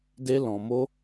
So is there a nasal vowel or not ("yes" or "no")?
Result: yes